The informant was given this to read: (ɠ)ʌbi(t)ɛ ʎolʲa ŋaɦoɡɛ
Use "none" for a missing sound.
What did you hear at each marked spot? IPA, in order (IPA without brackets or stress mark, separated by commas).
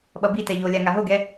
ɓ, t